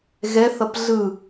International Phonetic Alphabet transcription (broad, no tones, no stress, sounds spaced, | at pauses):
ɣ ɛ θ ʌ p ɮ ɯ